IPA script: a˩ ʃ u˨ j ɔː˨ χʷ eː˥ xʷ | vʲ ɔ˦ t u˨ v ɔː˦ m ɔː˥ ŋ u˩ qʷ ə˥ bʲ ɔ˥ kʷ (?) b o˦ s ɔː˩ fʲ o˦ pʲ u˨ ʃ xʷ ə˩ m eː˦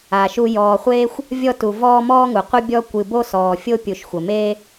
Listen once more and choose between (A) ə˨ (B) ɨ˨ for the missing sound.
B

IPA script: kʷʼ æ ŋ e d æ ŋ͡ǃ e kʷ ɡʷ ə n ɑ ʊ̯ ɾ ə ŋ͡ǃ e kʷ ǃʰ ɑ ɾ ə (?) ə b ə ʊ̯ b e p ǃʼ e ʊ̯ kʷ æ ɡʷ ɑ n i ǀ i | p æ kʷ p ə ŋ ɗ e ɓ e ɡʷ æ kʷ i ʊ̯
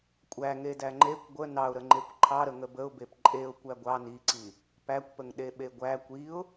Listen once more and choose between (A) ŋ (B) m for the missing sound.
A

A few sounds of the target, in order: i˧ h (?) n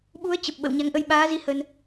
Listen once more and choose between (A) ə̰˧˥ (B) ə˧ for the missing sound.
B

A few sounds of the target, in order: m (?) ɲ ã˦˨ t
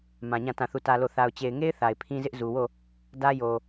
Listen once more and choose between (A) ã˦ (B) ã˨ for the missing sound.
B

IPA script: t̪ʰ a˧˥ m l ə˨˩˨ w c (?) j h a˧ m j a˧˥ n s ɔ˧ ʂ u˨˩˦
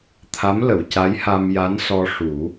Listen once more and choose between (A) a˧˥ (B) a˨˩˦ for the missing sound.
A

